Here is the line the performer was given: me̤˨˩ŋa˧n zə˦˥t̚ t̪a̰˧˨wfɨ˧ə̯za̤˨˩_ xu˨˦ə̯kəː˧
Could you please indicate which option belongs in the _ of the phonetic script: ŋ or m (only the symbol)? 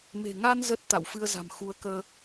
m